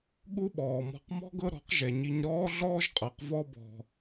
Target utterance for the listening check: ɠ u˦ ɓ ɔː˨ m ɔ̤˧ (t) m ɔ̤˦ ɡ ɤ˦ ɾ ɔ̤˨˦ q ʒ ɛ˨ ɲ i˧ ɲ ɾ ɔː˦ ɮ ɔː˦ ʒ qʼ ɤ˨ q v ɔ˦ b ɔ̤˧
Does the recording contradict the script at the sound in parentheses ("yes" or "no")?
yes